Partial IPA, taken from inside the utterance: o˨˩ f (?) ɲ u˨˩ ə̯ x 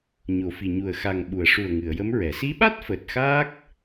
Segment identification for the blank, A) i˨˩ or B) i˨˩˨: A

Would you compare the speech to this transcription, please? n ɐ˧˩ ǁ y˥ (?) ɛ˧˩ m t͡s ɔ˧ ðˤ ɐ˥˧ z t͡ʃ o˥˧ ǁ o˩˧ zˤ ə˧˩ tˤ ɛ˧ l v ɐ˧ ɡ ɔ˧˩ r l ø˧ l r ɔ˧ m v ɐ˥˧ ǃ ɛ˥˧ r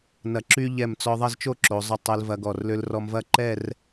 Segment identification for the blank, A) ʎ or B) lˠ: A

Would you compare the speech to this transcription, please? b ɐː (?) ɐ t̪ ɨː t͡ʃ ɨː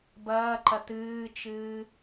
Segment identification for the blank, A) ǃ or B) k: A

